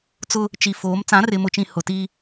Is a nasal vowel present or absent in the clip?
present